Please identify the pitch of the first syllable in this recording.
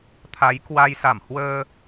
rising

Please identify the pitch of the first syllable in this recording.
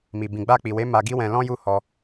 low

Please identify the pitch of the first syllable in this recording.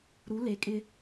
rising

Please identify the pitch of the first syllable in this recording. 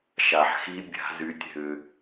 low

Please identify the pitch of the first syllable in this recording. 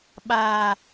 low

